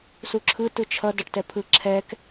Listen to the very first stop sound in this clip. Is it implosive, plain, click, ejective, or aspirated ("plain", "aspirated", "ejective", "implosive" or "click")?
click